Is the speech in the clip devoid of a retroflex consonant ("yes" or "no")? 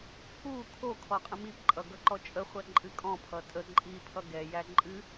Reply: yes